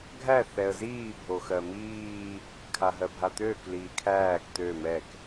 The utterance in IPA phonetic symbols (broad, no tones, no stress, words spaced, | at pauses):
ɡʱæ θɛə̯ziː bʱoxɜmiː | kʰaɦɜbʱat̪øːk liːkʰæːk t̪ø mɛk